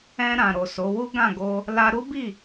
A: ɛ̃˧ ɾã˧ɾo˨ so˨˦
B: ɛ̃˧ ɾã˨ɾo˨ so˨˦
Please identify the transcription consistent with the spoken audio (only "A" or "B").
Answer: B